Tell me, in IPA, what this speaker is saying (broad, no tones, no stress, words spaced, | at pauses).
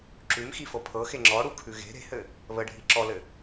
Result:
ǁʉmxifɤ pʰɤxe ŋ͡ǁɔɽukʰʉ ɣe̤ ɾe̤hɘ | βəɖʱi ǁɔlɘ